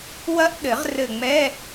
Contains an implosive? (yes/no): yes